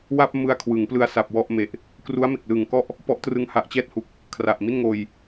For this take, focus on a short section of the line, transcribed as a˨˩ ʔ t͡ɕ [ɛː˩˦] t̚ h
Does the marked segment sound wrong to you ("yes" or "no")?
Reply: yes